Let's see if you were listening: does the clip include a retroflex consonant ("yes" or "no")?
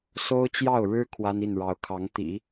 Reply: yes